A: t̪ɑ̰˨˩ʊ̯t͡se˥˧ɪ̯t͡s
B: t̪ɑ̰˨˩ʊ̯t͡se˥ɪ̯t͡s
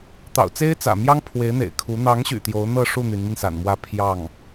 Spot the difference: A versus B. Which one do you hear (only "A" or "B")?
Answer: B